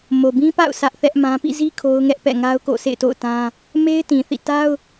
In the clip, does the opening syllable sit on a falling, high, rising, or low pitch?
low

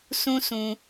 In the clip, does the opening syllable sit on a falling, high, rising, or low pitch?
high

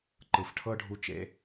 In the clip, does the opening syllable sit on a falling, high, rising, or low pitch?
low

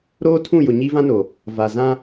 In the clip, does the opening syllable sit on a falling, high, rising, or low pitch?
high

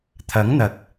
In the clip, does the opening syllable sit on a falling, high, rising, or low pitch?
rising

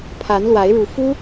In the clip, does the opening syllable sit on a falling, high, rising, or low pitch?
rising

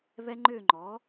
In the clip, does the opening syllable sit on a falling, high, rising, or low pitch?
high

